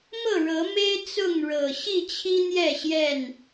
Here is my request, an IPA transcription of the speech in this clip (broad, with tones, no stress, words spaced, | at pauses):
mɤ˥˨ɻɤ˨˦ me˦ɪ̯ t͡sʊ˥˨ŋɻɤ˨˩ ɕi˥˨t͡ɕʰi˦n̪jɛ˥˨ɕjɛ˥˨n